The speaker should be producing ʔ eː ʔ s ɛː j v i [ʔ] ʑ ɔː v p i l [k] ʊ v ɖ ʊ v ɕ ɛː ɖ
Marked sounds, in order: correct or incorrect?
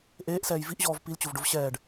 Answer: correct, incorrect

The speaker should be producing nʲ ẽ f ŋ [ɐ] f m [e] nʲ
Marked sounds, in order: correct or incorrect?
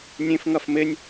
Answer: correct, correct

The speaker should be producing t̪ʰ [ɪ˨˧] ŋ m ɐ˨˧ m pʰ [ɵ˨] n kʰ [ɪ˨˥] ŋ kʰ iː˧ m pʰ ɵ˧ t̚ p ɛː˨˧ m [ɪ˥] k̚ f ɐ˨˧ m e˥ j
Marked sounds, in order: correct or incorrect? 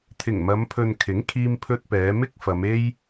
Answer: incorrect, correct, correct, correct

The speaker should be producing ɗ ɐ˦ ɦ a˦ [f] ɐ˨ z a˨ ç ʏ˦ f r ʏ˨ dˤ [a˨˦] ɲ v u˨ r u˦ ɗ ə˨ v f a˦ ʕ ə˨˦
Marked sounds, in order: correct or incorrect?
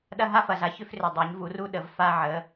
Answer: correct, correct

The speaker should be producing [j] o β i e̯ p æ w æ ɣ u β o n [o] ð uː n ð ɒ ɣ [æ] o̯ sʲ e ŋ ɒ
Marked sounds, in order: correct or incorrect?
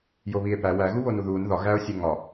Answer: correct, incorrect, correct

